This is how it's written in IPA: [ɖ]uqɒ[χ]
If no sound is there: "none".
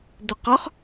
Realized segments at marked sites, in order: d, χ

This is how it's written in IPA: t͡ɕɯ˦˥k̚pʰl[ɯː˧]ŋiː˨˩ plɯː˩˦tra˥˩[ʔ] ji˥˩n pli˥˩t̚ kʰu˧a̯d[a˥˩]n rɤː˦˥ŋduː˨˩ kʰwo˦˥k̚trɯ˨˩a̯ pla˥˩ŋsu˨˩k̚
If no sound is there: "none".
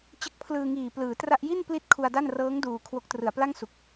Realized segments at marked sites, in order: ɯː˧, ʔ, a˥˩

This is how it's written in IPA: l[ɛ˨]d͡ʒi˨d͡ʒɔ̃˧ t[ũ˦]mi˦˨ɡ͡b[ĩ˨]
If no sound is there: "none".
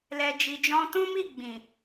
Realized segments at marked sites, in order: ɛ˨, ũ˦, ĩ˨

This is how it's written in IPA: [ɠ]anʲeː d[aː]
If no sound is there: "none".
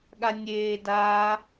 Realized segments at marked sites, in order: ɠ, aː

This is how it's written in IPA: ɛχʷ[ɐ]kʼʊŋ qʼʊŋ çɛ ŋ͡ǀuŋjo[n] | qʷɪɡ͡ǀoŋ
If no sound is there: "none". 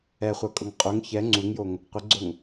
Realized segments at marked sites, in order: ɐ, ŋ

